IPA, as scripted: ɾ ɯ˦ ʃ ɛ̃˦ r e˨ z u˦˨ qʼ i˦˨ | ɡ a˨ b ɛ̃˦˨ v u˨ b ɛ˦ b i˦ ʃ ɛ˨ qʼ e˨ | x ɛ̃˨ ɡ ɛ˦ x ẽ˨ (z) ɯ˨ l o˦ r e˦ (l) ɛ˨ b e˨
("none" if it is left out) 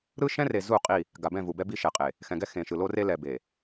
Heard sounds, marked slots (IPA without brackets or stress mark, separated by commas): ʃ, l